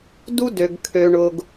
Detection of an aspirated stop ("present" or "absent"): present